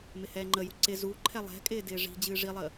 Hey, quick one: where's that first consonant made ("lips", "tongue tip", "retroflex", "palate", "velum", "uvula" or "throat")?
lips